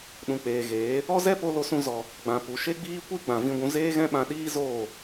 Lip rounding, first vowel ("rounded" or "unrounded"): rounded